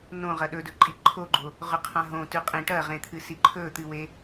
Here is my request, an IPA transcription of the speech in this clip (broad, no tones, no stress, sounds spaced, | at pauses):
n õ ʁ ɐ ɗ ɵ d ɵ ǃʼ i ǃʰ o ɡ͡ǃ o | ʁ ɵ qʰ ã ɦ õ t ʉ qʼ ĩ ʈ ɐ ʁ ẽ t̪ʰ ɨ s i ǃʰ ɵ t̪ ɨ w e